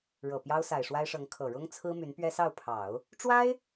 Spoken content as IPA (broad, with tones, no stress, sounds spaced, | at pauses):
ɻ ɤ˨˩ p j ɑ˥ ʊ̯ s a˨˩ ɪ̯ ʂ w a˥ ɪ̯ ʂ ɤ˧˥ ŋ kʰ ɤ˨˩ ɻ ʊ˥ ŋ t͡sʰ ɹ̩˥ m y˧˥ n p ɥ ɛ˥ s ɑ˥˩ ʊ̯ pʰ ɑ˨˩˦ ʊ̯ | ʈ͡ʂ w a˥ ɪ̯